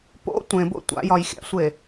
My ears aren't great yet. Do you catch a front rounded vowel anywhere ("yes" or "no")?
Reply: no